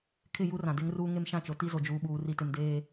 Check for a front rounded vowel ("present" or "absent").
absent